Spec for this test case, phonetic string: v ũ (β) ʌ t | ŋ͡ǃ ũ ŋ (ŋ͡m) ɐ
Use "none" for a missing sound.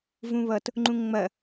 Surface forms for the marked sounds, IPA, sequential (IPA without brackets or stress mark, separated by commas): β, ŋ͡m